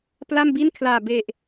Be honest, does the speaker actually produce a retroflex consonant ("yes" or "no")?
no